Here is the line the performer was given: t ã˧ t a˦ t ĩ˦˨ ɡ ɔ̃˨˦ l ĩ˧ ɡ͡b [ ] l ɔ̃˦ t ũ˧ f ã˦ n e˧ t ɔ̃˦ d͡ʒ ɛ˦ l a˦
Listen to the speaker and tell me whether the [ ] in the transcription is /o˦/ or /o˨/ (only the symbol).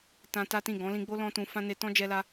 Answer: o˦